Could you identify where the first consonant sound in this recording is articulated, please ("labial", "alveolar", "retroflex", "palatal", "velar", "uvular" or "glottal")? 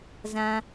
alveolar